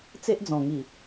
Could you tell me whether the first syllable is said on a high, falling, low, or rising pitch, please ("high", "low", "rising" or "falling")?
high